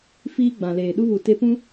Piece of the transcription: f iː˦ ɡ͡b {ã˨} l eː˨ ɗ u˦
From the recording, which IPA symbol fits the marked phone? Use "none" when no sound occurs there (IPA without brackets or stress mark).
ã˨